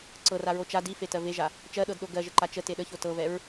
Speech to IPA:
ǀɤraɹo t͡ʃa difetɜ veʒa | t͡ʃɜɗɤdɗo ɡɜʒəǃa t͡ʃəte ɗəço tɤvɛɹ

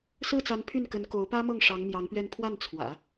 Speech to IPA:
sɹ̩˥˩t͡sa˧˥n pʰy˥˩nkə˧˥n ko˧˥ʊ̯pä˥mɤ˥˩ŋ ʂɑ˧˥ŋmjɑ˧˥ŋpɥɛ˥˧n pʰwa˥˩nt͡sʰwä̰˨˩˦

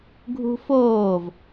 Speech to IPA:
ɡʱṳfoːv

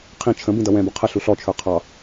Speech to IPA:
qʰĩ t͡ʃʰə̃ bĩdʌwɛ̃bʊ qʰə ɬuɬɔt͡ʃʰə˞ qʰɑ

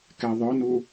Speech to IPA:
kɛðˤœnu

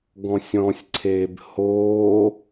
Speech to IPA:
ɡɔ̃sʲɔ̃sʲǀʰeːb hoː

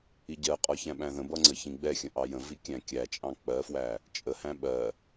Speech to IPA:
iɟɜqʼɒ çæ̃ɓæ̃ðə̃bʌ ŋ͡ǀəçĩɡ͡bɛxʲə̃ ʔɑjə̃vi kʲæ̃kʲæt͡ʃʼɑ̃ k͡pɜfwæ | t͡ʃʼəhæ̃ ɓɜ

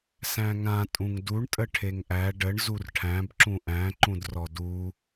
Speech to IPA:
sæ̃ŋã tʼũŋduɳ tʼəʈʰeŋʔæ ɖəɳ zurʈʰæ̃b ǁũʔæ̃ ǃũdrɔdu

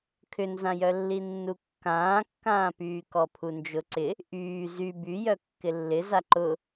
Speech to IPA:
kʰʏnzãjœlːi nːukːãːkːãːpyː kɔpʰund͡ʒʊǀɪ | ʔyː zy byjœ kːɪlːɪza ǃʊ

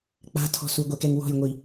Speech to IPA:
k͡pa̤tʰɔ̤ suɡʷɛkɛŋ wɔ̤jŋʷi

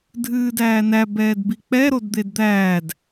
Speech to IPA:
dʱɨːdæːnæ bɛːdbik͡pɛ ɾodd̪edd̪æːd

